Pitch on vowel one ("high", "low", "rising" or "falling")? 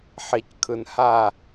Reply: low